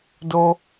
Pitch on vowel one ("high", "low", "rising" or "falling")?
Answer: high